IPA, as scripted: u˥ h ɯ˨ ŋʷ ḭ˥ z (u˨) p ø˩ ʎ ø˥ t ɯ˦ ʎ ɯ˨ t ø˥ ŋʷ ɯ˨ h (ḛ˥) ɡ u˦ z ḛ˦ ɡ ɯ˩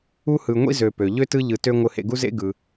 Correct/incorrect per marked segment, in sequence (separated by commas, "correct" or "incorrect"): incorrect, incorrect